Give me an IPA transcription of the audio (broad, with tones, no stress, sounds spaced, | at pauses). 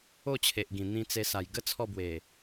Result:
o˥˧ t͡ɕʰ e˨ ʔ ɡ ĩ˨˩ n̪ ĩ˧ t͡s e˧ s a˨˩ j ɡ ə˦ t͡sʰ ɔ˥˧ b w e˨˩